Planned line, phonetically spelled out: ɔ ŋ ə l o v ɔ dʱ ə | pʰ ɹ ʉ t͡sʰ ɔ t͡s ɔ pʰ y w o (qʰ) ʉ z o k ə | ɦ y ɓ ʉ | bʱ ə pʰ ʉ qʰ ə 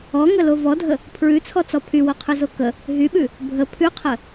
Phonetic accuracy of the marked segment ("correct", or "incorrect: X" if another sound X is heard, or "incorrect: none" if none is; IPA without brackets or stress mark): correct